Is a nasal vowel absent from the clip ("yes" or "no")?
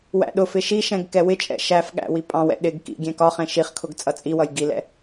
no